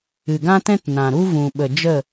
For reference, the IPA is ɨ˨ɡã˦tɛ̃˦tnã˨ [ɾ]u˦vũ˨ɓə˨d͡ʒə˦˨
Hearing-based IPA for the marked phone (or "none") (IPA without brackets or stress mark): ɾ